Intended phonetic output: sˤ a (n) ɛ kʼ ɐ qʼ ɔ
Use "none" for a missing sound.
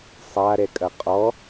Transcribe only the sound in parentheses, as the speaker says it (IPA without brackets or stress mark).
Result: ɾ